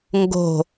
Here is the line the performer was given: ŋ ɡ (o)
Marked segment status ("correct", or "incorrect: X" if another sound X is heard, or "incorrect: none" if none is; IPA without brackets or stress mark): incorrect: o̤